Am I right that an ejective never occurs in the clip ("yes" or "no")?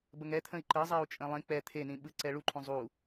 no